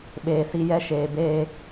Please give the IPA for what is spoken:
ɓeː˨ si˨ jɛ˦ʃeː˨beː˦

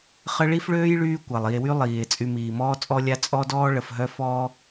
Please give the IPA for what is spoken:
χə˦ɭi˥fɭøː˥jɭyː˦ kʷa˩lˠi˨e̯wy˦ lˠiː˩e̯ t͡sʼy˨miː˩ mɔː˥t͡sʼɔ˥lʲa˥ t͡sʼɔ˦dɔː˦ ɭə˨fɦœ˦ fɔ˥

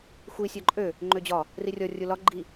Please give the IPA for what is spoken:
xʷi sʲɒǃʼø | ŋ͡ǃød͡ʑɒ | rirʲɔ rʲulɒ ɡ͡ǃi

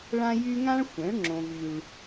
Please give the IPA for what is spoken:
ɭã˦jy˦ ŋã˦ɭxʷɛ̃˨˦ɭ ŋ͡ǁõ˦vy˦ɭ

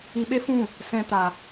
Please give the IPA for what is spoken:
i˧ɓe˦fũ˦˨ | sɛ̃˦ta˧

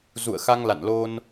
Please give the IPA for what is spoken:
zṵ˧˨ə̯xa˧ŋla̰˧˨nlo˧n

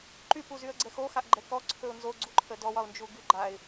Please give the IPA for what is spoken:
ǃypuzyə̯ɡ͡ǀɛ xoxaʔɡ͡ǃɛ kɔǀʰɵʊ̯ nzoɡ͡ǀuǃʰə dɔwɒʊ̯nd͡ʒuɡy ɡ͡ǃaɪ̯

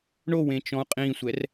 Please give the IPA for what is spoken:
ɳowẽt͡ʃɔ̃u̯ qʼĩsʷɛr

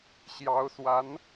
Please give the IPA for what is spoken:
ɕjɑ˧˥ʊ̯swa˧˥n

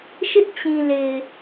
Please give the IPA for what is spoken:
ʃɪ˦ʔ t͡ɕĩ˨le˨ɪ̯

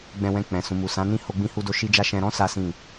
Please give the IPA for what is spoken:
ɡ͡bɛ̃˧wɛ̃˧k͡pɛ̃˨ sũ˨mu˨ sã˨˦nĩ˦˨ ho˧ɡ͡bĩ˧hu˧do˧ ʃi˦d͡ʒa˦ ʃɛ̃˧ɾɔ̃˦ sa˦sĩ˦˨

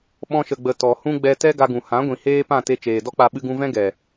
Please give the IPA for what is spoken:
ɓɔ̃˧ʃə˨ɡ͡bə˨ tɔ˨hũ˦ ɡ͡bɛ˧tɛ˦ ɡa˧ɡũ˨ hã˨˦ ɡʷĩ˨heː˦pã˦˨te˧ t͡ʃeː˨dɔ˦k͡pa˧ ɓɨ˧ɡũ˧vɛ̃˦ ɡɛ˨

